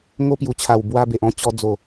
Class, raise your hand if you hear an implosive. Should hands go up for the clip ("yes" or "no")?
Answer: no